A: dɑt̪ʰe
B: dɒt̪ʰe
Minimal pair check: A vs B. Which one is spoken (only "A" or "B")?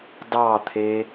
A